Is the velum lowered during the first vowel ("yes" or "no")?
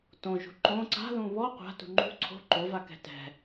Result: yes